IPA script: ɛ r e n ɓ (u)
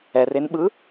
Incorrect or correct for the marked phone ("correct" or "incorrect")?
incorrect